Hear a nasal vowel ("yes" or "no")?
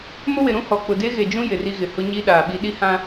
yes